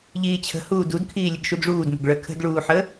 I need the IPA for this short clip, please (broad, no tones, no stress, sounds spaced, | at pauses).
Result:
ʎ iː t͡ɕʰ ə̤ h uː d u d kʰ iː lʲ ə ɡ ʃ u d ʐ uː d m ə̤ ɡ ɭ œ kʰ ə̤ d ɭ uː ħ ə